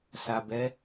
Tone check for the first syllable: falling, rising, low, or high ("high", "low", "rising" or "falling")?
low